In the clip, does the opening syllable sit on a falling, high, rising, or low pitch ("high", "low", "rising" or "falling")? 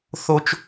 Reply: high